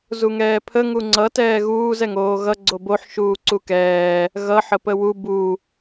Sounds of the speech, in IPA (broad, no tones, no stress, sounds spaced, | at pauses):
z u ŋ ɛː pʰ ə ŋ u ŋ͡ǀ ʌ t ɛː ɣ uː z ɛ ŋ oː ɣ ʌ ɡ͡ǀ o b o ħ ʃ uː ǀ u k ɛː | ɣ ʌ ħ ə p ə w u b u